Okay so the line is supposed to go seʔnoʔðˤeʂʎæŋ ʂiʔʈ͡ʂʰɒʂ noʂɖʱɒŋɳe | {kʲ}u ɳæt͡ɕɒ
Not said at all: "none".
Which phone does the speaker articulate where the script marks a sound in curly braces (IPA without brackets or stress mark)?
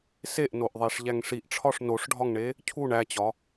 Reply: cʰ